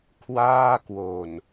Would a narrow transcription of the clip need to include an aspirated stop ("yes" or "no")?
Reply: yes